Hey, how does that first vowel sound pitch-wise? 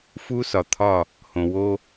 high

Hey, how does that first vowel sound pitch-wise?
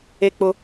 high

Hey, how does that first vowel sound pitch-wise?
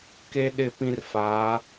high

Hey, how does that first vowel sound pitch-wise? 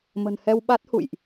low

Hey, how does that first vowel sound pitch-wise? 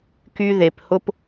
high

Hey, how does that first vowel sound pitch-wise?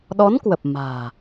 rising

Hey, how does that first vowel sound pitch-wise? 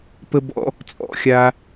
high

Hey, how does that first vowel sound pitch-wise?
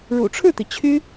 low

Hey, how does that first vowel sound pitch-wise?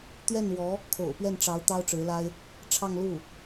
falling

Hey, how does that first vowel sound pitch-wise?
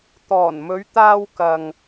low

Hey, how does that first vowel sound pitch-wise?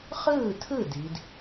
falling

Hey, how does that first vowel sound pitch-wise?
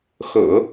low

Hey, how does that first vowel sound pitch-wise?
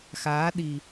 rising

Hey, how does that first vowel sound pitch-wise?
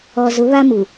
low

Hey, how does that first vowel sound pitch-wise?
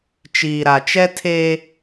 low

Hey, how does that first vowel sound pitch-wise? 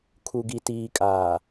low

